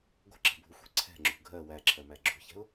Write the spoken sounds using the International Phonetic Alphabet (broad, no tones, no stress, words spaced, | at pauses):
ɡʷə̤ǁə̤bʱuxʷɛ̤ ǀʰɛ̤ŋ͡ǁṳ ɡʱɜ wæǁʰɜmæ ɡ͡ǁṳçɛ̤ʊ̯